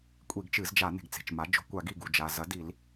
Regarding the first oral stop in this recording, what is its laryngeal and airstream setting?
ejective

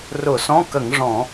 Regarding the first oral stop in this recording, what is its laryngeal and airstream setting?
plain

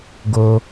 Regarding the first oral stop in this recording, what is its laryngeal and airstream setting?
plain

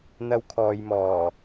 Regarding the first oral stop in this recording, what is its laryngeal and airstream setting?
aspirated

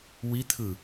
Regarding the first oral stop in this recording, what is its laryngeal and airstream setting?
aspirated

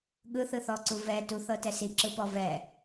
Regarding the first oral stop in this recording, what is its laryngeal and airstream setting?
implosive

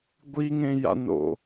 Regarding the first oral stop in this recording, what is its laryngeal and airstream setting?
plain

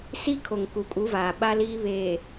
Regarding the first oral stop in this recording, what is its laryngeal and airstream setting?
aspirated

